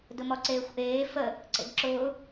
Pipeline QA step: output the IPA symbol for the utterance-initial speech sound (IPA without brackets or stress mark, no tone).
d